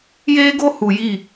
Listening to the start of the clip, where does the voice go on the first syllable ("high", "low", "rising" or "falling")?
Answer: high